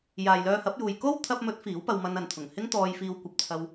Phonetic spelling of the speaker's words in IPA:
j aː˨ j l œː˧ h ɐ˨˥ p̚ j uː˨ j k o˥ w t̪ʰ ɐ˧ p̚ m ɵ˨˥ t̚ f iː˨˥ w p ɐ˧ w m ɐ˧ n ɐ˨ n t̪ʰ ʊ˨˩ ŋ h ɪ˥ ŋ t̪ ɔː˧ j f iː˧ w kʷ ɐ˧ p̚ t͡sʰ ɐ˧ w

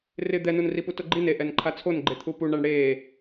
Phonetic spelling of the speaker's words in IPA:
r ɪ d̪ ɛ n u n r i p u t ʊ ɡ͡ǃ i n e ʔ ɛ n ǃʰ a t͡sʰ o n ɡ͡ǃ e t̪ʰ u p u ɳ a ɳ ɽ e

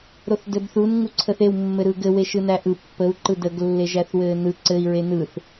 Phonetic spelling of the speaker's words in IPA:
ɾ o θ d ɘ b θ u n ŋ u ǀʰ ə θ e w mː ɘ ɾ ɯ ɡ ɘ w e ʃ ɯ n æ ʔ ɯ pː ə u̯ ǃ ɯ d ə ɡ lː e ʒ æ θ w ɘː n ɯ ǀ ɘ i̯ ɹ e n ɯ θ

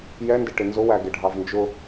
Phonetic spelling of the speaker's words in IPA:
j ɛ n d ɪ ʈ ɪ n z ʊ w æ ɡ ɪ ɖʱ ɑ v n d͡ʒ ʊ

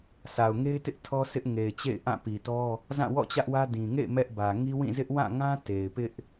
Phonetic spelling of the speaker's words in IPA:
sʰ a˨ ʊ̯ ŋ e˦ ɪ̯ t ɪ˦ ʔ tʰ ɔ˦ sʰ ɪ˦ ʔ ŋ e˨ ɪ̯ t͡ɕ ḛ˦˨ ɪ̯ ʔ ã˦˨ p i˨ t ɔ˦ | z ã˦˨ w ɔ̰˦˨ t͡ɕ ä˦ ʔ w ä˦ d ĩ˨ ŋ ḛ˦˨ ɪ̯ m ɛ˦ ʔ b ä˨ ŋ i˦ w ĩ˦˨ z ɪ˦ ʔ w ã˦˨ ŋ ã˦ t e˨ ɪ̯ p ɪ˦ ʔ

